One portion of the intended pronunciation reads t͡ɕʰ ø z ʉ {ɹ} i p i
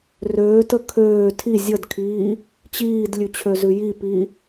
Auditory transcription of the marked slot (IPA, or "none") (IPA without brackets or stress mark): j